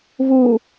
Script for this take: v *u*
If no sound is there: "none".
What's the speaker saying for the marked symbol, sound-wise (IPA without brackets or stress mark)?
u